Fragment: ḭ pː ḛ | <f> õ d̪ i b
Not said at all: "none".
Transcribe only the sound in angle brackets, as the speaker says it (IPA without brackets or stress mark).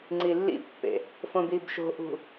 f